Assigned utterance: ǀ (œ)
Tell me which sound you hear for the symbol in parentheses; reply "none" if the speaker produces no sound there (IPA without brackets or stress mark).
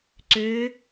ø